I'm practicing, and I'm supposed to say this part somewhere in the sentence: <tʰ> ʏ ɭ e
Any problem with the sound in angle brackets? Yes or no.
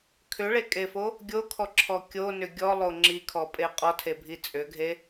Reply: yes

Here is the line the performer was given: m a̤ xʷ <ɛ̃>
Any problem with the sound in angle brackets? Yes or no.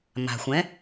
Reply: no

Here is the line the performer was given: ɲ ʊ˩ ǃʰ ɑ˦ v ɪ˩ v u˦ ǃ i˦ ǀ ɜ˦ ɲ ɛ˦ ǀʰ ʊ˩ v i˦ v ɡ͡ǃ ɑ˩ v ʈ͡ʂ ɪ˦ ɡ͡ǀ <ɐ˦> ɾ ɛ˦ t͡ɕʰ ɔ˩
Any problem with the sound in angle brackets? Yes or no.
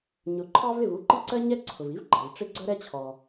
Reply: yes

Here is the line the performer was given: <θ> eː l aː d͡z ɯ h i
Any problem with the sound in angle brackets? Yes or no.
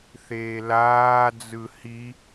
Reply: no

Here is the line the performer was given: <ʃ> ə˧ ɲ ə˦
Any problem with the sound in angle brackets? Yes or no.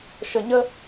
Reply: no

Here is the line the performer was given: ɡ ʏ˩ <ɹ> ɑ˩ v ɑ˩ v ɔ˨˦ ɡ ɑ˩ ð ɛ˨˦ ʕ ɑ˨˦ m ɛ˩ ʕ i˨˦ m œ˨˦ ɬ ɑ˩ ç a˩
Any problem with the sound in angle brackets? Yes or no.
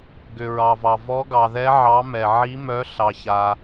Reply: no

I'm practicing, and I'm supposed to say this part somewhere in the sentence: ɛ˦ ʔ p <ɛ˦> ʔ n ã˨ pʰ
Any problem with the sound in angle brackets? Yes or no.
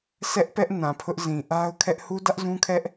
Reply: no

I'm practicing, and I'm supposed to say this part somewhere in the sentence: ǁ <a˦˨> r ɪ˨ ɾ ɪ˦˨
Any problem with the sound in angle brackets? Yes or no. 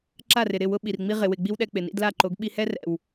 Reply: no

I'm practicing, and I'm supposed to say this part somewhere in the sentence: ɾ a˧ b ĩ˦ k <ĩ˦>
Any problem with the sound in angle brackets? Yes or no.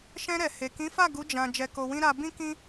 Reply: no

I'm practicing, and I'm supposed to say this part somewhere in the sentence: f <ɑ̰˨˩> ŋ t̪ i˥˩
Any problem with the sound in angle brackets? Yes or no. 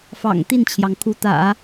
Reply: no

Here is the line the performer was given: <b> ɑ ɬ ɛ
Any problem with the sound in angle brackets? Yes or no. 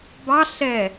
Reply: no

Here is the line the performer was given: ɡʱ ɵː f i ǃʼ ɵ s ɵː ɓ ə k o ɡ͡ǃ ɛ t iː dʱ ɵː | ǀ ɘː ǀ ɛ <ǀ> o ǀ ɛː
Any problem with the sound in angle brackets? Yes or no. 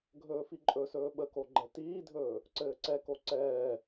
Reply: yes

